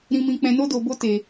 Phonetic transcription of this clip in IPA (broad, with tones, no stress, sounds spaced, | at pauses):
ɾ ĩ˧ m ĩ˧ k͡p ɛ̃˧ n o˦ d o˧ b o˦ t e˧